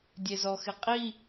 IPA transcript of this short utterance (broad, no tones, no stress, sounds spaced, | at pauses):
dʲ e z ɔ x ɪ qʼ i